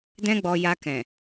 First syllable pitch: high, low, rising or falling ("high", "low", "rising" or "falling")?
high